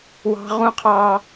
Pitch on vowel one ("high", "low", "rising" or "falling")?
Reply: high